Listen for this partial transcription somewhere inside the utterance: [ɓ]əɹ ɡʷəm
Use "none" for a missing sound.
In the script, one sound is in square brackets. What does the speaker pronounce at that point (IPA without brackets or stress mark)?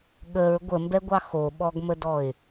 ɠ